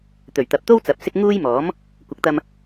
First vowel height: mid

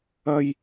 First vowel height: low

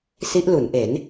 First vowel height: high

